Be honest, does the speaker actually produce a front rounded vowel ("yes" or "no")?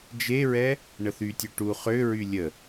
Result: yes